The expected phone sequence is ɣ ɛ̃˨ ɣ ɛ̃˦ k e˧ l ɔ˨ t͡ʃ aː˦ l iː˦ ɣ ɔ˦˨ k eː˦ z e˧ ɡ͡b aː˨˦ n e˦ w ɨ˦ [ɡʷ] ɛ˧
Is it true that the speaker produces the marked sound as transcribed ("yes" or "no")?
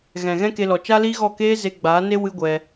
yes